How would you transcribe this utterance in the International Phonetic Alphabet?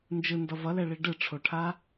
n d͡ʒ ɯ n d ʌ v ʌ l ɛ ɭ i ɖ ɯ ʈ͡ʂʰ o ʈʰ a

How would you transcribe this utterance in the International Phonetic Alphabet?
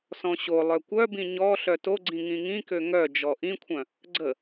s ɔ̃ ɕ o lˠ œ kʷ œ b ĩ ɲ ɔ ɬ œ t o ɡ͡ǀ ĩ ŋ ĩ ŋ ĩ k ø ŋ œ d͡ʒ ɔ ʔ ĩ kʷʰ œ̃ | ɡ͡ǀ ə

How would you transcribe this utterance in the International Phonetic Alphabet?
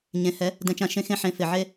ɲ ẽ˨ h ɛ˨˦ | d ɛ̃˨ t͡ʃ ã˨ ʃ ẽ˦ x ẽ˦ ħ ẽ˨˦ f ɪ˨ ʕ e˦

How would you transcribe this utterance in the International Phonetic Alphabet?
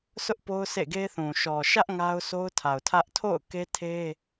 sʰ ʊ˦ ʔ p o˦ ʊ̯ s ḛ˦˨ ɡ e˦ θ ũ˨ ʃ ɔ˨ ʃ ä˦ ʔ ŋ a˦ ʊ̯ s o˦ ʊ̯ tʰ a˨ ʊ̯ tʰ ä˦ ʔ tʰ o̰˦˨ ʊ̯ k e˦ tʰ e˦

